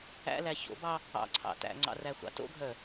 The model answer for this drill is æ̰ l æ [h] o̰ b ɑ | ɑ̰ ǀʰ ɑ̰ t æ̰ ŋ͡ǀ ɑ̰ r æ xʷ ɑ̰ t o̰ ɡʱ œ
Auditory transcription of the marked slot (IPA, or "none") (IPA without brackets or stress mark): ç